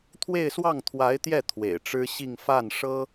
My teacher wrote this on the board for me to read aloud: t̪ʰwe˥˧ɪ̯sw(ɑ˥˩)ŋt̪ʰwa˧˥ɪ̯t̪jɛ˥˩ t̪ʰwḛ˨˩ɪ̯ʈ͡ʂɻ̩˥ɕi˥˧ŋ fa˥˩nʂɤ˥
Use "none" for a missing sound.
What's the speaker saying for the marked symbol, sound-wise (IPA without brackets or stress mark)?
ɑ˥˩